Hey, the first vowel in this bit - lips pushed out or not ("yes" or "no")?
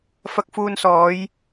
no